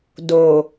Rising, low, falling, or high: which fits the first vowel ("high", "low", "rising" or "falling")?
low